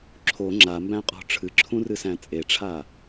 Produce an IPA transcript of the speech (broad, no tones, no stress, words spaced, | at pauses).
ǁʰo ŋ͡ǁambæ̃qʼɔ̤ ʈ͡ʂʰɨǁʰũrɨsæ̃ t͡sʼeʈ͡ʂʰa